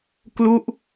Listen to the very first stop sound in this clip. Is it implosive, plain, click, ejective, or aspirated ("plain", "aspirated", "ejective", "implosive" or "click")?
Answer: plain